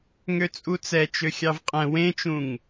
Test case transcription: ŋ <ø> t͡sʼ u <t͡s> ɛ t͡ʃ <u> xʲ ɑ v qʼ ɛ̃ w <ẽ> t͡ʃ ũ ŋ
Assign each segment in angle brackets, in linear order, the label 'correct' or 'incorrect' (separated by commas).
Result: correct, correct, incorrect, correct